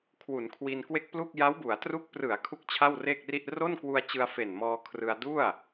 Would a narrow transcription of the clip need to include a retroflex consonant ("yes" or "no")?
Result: no